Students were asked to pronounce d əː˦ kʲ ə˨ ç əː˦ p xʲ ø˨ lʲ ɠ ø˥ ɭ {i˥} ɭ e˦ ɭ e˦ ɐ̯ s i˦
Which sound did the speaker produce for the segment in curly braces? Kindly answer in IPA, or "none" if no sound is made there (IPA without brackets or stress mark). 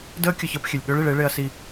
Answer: i˨